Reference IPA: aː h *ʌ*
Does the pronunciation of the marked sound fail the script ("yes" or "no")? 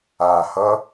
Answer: no